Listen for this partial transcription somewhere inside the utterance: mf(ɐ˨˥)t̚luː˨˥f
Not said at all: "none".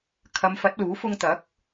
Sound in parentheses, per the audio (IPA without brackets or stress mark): ɐ˨˥